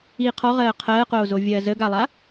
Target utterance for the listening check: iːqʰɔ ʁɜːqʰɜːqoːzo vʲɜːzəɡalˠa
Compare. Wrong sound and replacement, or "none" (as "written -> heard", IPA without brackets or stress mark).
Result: none